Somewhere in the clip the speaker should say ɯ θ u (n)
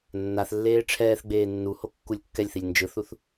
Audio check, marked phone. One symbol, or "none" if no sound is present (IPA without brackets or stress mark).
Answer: θ